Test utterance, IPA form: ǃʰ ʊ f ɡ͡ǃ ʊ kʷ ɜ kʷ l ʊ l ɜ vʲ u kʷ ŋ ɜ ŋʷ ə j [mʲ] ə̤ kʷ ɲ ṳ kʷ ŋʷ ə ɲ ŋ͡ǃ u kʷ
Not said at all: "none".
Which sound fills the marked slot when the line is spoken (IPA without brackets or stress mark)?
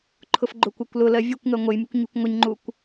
mʲ